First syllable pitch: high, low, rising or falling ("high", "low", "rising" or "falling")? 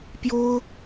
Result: high